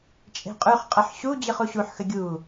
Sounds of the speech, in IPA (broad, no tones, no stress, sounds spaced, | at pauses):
t͡ʃʼ e̤ qʼ ʉ χ qʼ ə ħ ɕ u d͡ʑ ɯ χ u ɕ u ħ x ə ɡʲ u